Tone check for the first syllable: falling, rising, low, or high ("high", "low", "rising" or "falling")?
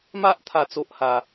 high